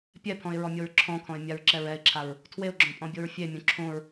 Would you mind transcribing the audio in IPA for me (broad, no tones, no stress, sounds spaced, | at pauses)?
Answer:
pʲ ɛ pʰ ɔ̃ ɪ̯ ɹ ɔ mʲ o ɹ ǁʰ ɔ̃ kʰ ɔ̃ ɪ̯ mʲ a ɹ ǁ ɛ ɹ ɛ ɪ̯ ǁʰ a ɹ | tʰ w e ʊ̯ ɡ͡ǁ ɔ̃ pʼ ɔ̃ bʲ o ɹ fʲ e mʲ õ ǁʰ õ ɹ